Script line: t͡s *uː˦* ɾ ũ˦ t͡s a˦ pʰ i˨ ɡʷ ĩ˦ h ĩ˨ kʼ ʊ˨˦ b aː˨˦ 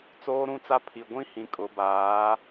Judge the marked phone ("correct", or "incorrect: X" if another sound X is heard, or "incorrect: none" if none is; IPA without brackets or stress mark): incorrect: oː˦